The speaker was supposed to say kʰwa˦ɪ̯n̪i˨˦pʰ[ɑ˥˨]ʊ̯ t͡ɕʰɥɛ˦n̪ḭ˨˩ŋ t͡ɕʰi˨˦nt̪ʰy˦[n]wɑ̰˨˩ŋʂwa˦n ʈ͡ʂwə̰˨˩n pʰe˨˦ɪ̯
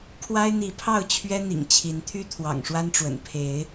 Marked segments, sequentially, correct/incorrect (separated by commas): correct, incorrect